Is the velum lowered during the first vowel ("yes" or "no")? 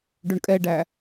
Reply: no